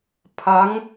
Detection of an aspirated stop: present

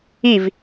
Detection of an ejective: absent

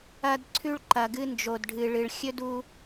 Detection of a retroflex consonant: present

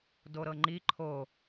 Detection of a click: present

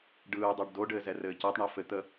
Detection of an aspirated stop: absent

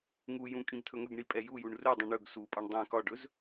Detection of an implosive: absent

